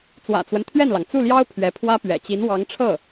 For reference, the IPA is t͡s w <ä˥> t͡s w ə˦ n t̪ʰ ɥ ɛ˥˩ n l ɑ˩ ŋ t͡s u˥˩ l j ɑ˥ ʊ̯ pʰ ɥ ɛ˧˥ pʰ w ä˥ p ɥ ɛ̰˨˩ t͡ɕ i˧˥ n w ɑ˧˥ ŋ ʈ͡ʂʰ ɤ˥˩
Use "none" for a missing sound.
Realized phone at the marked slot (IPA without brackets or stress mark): ä̰˨˩